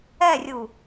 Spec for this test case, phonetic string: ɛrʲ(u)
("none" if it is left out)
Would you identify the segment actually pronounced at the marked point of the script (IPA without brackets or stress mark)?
u